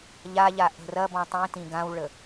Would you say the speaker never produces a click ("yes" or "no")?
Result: yes